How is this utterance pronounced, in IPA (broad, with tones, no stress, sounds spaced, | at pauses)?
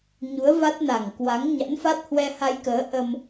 ɲ u˨˦ ə̯ v a˦˥ t̚ n a˨˩ ŋ k w a˨˦ ŋ ɲ a̰˧˥ n f a˦˥ t̚ h w ɛ˧ h a˧ j k əː˨˦ ʔ ə˧ m